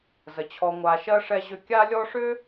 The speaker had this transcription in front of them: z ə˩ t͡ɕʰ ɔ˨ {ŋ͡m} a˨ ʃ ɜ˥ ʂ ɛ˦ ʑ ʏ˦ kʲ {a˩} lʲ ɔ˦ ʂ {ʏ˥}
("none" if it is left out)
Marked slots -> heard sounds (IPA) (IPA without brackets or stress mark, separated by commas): ŋʷ, a˦, ʏ˥